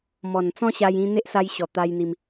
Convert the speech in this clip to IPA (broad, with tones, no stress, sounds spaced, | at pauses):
m ɔ˨˩ n t͡s ɔ̃˦ ɕ a˧ j ĩ˧ n̪ e˦ ʔ s a˧ j ɕ ɔ˨˩ t̪ a˧ j n̪ i˧ m